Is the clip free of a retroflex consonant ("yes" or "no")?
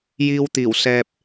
yes